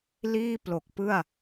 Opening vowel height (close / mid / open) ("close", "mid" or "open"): close